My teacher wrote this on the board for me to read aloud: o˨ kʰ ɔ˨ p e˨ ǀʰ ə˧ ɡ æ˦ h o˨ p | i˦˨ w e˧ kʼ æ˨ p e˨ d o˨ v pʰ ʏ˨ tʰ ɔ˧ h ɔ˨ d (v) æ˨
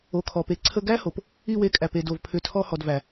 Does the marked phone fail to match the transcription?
no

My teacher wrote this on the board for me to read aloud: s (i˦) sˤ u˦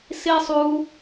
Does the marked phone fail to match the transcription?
no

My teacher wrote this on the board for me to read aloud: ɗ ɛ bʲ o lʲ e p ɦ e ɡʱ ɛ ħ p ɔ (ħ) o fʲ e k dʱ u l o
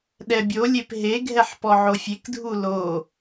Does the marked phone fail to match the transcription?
yes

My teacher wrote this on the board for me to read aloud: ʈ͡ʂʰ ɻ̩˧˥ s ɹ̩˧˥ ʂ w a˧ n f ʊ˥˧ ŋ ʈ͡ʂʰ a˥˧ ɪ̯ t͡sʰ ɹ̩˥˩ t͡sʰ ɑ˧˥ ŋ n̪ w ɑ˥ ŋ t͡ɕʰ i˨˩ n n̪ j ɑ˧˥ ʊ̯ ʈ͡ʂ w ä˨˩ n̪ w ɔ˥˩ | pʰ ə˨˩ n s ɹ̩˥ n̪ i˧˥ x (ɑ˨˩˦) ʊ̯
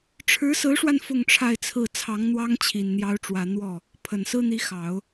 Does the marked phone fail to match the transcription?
no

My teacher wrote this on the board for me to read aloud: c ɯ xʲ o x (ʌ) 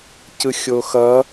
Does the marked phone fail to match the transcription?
no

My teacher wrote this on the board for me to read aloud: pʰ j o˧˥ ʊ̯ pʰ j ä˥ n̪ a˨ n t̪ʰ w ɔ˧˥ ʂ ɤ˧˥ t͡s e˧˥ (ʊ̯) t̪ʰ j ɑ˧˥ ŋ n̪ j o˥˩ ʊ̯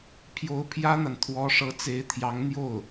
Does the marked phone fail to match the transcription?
yes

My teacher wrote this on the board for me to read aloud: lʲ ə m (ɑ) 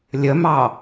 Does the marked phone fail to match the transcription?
no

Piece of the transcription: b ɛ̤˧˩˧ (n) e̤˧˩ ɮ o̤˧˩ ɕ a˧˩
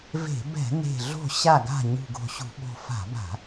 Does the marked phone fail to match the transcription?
no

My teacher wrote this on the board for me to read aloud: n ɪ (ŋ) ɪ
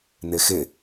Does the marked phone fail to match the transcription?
yes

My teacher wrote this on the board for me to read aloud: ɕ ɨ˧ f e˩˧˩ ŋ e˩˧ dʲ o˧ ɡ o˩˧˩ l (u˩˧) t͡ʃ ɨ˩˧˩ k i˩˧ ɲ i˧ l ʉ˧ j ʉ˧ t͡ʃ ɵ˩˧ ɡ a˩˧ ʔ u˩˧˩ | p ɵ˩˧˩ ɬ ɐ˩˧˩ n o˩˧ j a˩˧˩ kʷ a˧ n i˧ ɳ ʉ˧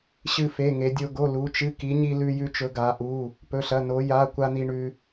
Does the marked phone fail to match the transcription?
no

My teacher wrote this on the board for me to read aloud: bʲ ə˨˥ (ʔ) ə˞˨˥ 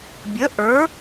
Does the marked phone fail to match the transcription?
no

